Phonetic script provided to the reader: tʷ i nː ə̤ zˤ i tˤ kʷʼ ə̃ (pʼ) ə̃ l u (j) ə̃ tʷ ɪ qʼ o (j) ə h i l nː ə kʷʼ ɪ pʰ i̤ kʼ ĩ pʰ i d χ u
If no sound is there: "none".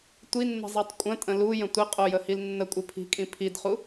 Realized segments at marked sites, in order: tʼ, j, j

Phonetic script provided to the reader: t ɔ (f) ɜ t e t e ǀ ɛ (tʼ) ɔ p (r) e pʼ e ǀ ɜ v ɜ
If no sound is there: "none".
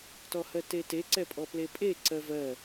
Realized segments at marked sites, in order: h, pʼ, l

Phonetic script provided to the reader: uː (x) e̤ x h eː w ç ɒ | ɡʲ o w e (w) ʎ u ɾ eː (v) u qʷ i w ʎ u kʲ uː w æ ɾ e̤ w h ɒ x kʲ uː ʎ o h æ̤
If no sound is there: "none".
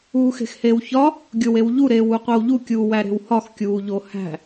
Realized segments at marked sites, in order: x, w, w

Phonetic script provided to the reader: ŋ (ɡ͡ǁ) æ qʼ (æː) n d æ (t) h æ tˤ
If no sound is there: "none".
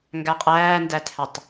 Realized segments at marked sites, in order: ɡ, æː, t

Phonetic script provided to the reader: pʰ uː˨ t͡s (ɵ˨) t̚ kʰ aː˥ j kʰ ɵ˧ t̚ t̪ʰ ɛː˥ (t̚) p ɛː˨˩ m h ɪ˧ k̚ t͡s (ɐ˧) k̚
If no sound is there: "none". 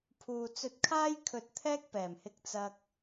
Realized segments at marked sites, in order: ɵ˧, k̚, ɐ˧

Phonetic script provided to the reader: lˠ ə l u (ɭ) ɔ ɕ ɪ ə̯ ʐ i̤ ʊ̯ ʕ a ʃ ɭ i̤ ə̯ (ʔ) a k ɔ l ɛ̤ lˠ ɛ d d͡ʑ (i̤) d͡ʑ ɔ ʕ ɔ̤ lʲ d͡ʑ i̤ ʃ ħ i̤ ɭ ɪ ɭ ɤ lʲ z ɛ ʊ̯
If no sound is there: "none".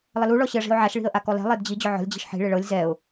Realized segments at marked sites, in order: ɭ, ʔ, i

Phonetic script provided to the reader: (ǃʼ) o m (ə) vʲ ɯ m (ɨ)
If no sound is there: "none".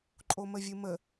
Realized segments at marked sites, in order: ǃʼ, ə, ə

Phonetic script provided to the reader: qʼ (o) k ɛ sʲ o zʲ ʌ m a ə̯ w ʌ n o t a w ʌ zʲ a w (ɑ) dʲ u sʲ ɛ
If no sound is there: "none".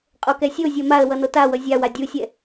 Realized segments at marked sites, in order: o, a

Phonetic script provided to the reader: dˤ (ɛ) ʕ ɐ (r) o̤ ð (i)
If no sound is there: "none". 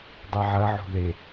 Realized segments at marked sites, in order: ɛ, ʕ, e

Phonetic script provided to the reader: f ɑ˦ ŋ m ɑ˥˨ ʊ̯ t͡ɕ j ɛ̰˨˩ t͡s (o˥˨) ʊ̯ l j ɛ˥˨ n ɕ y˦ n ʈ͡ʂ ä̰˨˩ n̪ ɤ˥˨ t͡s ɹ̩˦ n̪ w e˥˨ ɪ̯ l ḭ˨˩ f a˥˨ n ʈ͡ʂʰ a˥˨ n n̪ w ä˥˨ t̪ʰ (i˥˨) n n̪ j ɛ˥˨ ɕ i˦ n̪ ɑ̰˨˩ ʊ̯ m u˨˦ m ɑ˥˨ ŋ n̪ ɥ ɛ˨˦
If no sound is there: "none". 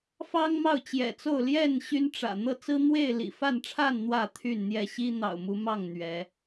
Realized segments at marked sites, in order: o˥˨, y˥˨

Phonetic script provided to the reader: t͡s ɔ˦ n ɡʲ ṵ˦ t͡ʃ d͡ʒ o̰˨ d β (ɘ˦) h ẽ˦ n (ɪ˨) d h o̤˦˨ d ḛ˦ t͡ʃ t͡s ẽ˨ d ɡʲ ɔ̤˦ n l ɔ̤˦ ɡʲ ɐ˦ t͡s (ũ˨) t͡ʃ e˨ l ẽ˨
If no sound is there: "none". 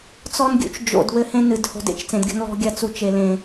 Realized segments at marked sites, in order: ɘ˦, ɨ˨, u˨

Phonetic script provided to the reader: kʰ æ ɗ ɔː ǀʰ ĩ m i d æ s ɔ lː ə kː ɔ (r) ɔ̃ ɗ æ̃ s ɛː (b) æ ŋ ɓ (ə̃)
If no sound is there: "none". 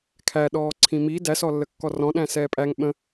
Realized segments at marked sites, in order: r, pʼ, ə̃

